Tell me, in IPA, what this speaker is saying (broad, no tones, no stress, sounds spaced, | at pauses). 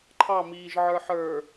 ǃʰ ɑ m iː ʒ ʕ ə˞ ħ ə˞